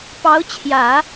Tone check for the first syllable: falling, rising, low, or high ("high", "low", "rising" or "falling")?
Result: rising